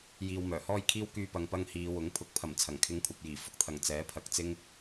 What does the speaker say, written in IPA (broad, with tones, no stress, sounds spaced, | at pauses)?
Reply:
j iː˨ w m œː˨˩ h ɔː˥ j kʰ iː˥ w k yː˥ p ɐ˧ ŋ p ɐ˥ ŋ h iː˨˧ w ʊ˨˥ ŋ pʰ ʊ˨˥ k̚ pʰ ɐ˨˩ m t͡sʰ ɐ˨˩ ŋ kʰ ɪ˧ ŋ kʷʰ ɐ˨ p̚ j iː˨˩ f ʊ˧ k̚ t̪ʰ ɐ˨˩ ŋ t͡s ɛː˨˥ pʰ ɐ˨ k̚ t͡s ɪ˥ ŋ